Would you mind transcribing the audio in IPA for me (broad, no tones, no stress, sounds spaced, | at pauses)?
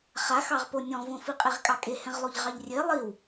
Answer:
χ a x ɑ ʁ p o nʲ ɔ̃ v õ f i qʼ e ʁ kʼ ɑ kʼ e h ɛ̃ ʁ lˠ o ʎ ʁ ɑ ʎ rʲ e lˠ i w